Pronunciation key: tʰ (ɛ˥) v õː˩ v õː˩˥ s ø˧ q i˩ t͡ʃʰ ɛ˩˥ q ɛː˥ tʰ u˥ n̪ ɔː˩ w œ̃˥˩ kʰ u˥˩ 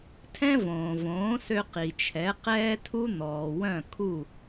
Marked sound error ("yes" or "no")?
yes